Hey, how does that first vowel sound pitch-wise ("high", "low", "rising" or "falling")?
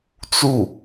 falling